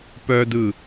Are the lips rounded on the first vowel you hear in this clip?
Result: yes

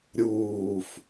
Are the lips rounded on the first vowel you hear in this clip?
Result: yes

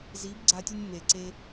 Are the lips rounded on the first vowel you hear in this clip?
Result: no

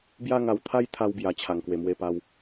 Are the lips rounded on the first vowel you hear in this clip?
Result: no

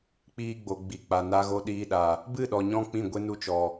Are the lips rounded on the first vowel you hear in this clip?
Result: no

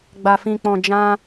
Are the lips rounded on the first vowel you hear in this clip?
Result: no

